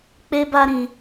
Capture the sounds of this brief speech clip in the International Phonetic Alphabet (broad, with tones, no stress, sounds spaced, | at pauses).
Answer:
k͡p e˦ b a˦ ɾ ĩ˧